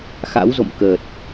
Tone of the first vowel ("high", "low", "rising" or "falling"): rising